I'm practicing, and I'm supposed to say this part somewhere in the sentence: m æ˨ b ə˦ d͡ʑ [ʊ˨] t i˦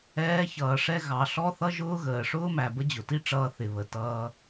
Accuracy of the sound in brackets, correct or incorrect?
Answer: correct